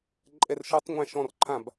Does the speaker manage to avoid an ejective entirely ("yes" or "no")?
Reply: no